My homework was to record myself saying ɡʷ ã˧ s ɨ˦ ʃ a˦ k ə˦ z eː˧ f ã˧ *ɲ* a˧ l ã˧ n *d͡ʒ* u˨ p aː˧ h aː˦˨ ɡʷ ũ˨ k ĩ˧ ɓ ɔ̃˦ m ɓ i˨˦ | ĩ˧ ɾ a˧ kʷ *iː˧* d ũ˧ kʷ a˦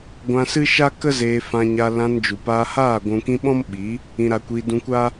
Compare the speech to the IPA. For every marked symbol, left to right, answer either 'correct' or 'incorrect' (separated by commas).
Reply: correct, correct, correct